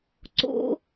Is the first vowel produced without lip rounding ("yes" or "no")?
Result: no